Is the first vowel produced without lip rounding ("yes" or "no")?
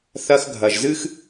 yes